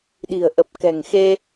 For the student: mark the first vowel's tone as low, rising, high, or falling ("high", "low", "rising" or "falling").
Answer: low